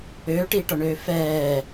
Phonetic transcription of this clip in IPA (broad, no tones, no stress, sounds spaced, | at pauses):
øː ʈ iː ʈ ɔ ɳ øː f ɛː